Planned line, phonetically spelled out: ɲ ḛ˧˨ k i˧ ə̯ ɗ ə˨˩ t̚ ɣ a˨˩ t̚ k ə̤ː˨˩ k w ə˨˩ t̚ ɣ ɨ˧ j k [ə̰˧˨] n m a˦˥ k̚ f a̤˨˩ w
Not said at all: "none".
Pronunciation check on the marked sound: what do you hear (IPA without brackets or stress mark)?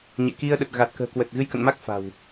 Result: ə̰˧˨